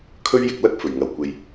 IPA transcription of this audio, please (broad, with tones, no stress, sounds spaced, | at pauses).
kʰ ɵ˥ ɥ j ɪ˧ k̚ l ɐ˥ k̚ f ɵ˨˩ ɥ ŋ ɐ˨˩ w kʷ e˨ j